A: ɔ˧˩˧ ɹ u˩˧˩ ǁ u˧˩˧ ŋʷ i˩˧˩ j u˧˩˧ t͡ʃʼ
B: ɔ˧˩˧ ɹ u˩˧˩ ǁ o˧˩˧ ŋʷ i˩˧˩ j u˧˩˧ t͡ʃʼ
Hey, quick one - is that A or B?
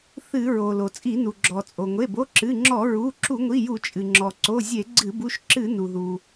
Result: A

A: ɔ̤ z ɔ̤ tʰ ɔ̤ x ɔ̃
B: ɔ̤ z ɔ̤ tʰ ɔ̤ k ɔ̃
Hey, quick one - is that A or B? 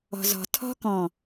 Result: B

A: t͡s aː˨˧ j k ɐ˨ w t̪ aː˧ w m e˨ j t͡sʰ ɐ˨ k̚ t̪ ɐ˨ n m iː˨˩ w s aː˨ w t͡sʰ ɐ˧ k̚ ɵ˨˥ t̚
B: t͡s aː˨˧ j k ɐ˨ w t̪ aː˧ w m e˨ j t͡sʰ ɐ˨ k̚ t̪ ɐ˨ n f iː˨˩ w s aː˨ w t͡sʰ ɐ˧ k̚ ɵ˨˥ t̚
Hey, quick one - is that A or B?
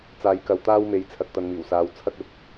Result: A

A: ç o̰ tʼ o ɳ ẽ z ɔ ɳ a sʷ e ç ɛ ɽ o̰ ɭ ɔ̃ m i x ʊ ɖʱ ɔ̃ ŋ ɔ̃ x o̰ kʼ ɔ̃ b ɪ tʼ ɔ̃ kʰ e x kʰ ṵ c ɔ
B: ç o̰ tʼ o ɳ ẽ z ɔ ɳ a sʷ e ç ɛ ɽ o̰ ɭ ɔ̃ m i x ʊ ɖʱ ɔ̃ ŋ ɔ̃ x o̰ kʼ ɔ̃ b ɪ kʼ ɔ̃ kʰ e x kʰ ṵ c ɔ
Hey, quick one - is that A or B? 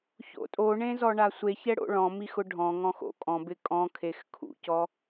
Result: B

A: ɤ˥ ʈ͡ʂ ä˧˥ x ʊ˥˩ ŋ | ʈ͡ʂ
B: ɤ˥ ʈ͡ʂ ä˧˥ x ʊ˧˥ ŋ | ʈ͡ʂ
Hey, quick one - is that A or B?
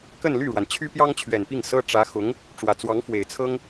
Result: B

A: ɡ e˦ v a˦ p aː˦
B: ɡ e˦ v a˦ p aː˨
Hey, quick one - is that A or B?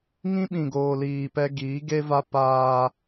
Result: A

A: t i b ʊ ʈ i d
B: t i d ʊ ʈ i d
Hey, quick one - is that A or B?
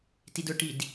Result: B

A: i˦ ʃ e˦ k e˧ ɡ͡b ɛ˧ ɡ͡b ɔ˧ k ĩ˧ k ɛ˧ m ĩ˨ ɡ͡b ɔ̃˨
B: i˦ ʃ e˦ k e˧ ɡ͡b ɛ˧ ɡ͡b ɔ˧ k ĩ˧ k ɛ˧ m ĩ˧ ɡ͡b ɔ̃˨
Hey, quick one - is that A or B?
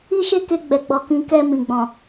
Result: A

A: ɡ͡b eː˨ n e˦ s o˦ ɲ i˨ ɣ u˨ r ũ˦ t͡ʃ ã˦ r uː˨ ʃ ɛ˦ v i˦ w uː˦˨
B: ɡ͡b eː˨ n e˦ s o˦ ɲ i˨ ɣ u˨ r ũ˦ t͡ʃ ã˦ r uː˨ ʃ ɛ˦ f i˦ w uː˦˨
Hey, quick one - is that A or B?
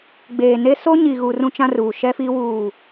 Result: B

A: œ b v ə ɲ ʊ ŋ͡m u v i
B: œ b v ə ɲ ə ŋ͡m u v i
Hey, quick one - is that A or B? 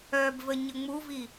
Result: B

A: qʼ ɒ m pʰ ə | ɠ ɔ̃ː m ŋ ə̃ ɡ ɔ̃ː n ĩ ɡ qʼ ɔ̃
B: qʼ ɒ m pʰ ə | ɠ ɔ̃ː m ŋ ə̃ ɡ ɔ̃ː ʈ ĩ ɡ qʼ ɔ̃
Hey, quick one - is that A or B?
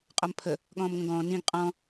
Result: A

